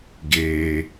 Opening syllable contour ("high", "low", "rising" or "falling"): low